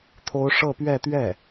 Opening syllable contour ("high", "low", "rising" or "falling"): high